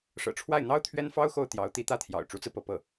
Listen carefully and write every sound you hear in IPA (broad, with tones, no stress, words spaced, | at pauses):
ʂɤ̰˨˩ʈ͡ʂʰwa˥˩ɪ̯n̪ɑ˥ʊ̯ t̪ʰɥɛ˥nfɑ˥ʊ̯xo˥˩ʊ̯ t̪jɑ˧˥ʊ̯t̪i˧˥t̪ä˥˩t̪ʰjɑ̰˨˩ʊ̯ ʈ͡ʂu˧˥t͡sɹ̩˧pɤ˥˧ pɤ˥˩